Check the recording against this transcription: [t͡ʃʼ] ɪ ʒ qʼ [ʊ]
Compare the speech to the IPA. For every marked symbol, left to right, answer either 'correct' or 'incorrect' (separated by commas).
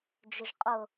incorrect, correct